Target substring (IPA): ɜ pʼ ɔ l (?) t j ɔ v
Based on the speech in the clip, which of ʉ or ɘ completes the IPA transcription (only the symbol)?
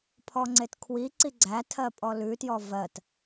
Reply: ʉ